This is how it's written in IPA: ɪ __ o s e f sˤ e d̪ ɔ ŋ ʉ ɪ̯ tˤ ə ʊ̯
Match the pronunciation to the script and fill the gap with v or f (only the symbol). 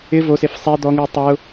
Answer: v